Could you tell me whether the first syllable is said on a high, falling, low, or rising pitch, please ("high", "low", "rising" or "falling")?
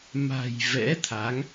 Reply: low